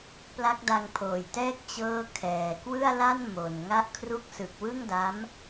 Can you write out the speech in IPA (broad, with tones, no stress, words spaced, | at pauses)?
pla˦˥k̚da˧ŋpʰoː˨˩jtɛː˥˩k̚ t͡ɕɤː˥˩ kʰɛː˨˩ kwɯ˥˩a̯la˥˩n mo˨˩n ŋa˦˥ʔkʰru˦˥k̚sɯ˨˩k̚ wɯ˥˩ŋda˦˥m